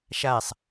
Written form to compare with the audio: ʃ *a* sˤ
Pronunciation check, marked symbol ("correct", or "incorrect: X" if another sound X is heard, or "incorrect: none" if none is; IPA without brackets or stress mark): correct